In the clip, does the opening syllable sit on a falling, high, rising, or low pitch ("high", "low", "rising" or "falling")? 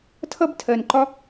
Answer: high